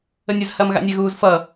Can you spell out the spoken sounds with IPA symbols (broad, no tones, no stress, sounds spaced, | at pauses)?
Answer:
ə nʲ ə z h ɐː m ɣ a̰ nʲ ɛ ɣ uː z f ʌ